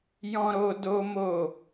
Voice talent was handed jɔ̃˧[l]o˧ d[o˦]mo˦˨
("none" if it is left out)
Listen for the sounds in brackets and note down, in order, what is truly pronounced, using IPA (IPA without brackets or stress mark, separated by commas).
ɾ, o˦